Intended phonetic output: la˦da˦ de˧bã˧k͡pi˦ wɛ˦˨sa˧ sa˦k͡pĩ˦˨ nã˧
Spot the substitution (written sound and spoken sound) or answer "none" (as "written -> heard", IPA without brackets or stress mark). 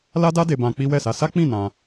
none